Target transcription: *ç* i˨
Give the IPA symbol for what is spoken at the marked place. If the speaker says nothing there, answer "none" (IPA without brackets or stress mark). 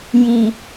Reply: j